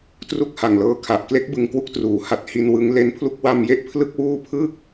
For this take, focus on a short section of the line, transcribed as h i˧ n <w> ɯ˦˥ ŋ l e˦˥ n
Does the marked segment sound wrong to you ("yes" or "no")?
no